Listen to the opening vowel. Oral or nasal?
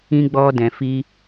nasal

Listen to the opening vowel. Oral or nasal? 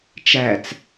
oral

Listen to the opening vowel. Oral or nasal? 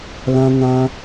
nasal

